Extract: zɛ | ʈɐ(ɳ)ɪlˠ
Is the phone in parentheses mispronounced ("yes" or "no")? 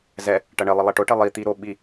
no